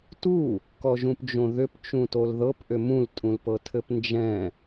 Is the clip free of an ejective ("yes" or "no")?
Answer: no